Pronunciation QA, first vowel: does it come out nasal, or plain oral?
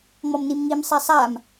oral